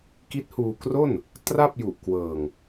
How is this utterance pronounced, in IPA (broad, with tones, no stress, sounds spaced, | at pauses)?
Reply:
k i˦˥ t̚ h uː˧ k r o˥˩ n | t r a˥˩ p̚ j u˨˩ ʔ k w ɤː˨˩ ŋ